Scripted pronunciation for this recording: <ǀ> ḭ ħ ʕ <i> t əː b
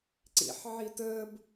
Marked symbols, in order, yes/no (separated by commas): yes, yes